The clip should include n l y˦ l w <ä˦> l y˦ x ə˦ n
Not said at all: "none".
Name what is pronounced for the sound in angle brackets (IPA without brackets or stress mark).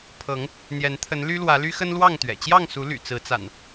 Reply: ä˨˦